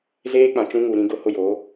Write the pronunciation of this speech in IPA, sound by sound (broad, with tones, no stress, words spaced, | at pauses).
zeː˦k͡pã˨t͡ʃũ˦ ŋu˨ ɾĩ˦ɡʊ˦ hʊ˦joː˨˦